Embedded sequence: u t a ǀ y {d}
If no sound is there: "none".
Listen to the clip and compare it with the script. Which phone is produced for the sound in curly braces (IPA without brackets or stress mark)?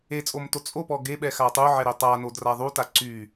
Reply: none